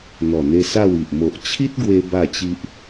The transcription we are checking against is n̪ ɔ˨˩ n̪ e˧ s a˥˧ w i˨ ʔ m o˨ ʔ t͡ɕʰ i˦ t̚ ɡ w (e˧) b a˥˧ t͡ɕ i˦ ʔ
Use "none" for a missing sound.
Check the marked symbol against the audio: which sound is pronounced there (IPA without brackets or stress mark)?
e˧